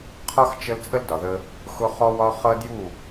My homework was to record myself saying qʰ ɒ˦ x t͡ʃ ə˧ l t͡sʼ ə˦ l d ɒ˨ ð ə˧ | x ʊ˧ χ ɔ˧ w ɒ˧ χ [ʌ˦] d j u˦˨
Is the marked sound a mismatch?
no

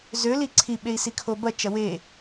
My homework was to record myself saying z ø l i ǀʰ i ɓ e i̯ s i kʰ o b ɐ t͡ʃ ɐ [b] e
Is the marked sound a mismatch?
yes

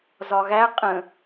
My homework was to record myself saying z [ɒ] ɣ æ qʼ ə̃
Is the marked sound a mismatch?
no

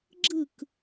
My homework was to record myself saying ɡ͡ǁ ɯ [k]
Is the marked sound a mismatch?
no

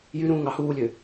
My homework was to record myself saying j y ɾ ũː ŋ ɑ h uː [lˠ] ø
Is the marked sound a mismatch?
yes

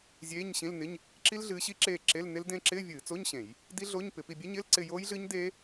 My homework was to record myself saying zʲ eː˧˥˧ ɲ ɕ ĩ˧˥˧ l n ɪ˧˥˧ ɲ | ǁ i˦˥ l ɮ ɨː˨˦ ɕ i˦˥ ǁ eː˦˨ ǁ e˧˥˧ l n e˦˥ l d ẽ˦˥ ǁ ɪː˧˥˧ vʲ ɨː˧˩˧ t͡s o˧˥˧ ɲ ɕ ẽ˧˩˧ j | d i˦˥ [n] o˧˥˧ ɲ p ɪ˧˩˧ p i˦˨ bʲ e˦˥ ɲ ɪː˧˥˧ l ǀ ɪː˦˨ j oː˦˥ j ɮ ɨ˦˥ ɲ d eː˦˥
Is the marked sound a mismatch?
yes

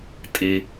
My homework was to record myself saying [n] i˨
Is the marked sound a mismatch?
yes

